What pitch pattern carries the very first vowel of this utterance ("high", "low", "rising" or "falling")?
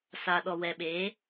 low